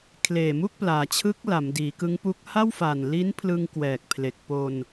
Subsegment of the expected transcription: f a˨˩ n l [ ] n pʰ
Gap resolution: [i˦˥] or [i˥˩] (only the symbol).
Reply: i˦˥